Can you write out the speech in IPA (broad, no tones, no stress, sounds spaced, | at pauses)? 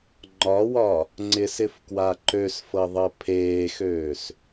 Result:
ŋ͡ǃ ɒ w ɒ | ŋ͡ǀ ɪ s ɪ f k w a ǃ ø s f ɤ ðˤ ɤ pʰ eː x øː s